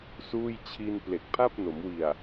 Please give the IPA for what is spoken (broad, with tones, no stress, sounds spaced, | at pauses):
s uː˥˩ j t͡ɕʰ i˧ n p l e˨˩ k̚ pʰ a˥˩ p̚ n o˩˦ m w i˨˩ a̯